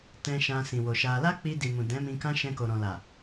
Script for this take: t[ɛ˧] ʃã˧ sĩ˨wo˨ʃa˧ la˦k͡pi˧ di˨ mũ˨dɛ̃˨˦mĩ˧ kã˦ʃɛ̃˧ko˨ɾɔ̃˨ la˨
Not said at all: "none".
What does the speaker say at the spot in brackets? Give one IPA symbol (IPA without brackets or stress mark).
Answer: ɛ̃˧